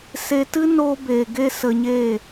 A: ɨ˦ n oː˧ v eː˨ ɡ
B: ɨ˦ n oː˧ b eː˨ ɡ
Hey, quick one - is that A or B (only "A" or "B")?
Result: B